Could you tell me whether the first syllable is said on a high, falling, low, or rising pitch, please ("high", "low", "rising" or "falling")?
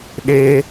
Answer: high